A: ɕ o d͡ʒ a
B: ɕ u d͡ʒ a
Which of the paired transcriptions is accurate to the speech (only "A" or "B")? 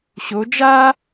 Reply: A